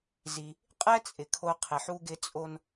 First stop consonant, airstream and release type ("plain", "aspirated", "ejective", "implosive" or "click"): ejective